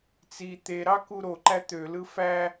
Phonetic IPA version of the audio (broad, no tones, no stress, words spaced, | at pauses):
t͡si t̪e ɾɑkuɾoǃæ t̪ølɯ fæ